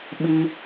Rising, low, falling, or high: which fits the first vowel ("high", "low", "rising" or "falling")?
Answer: high